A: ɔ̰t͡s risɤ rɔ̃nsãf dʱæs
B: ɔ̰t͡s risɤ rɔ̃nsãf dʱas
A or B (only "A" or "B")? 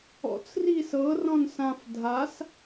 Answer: B